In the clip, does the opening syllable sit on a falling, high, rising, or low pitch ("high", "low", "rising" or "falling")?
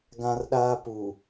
high